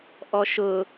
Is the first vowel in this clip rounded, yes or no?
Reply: yes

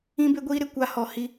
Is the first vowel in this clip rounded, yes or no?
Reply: no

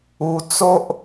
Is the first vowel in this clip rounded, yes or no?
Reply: yes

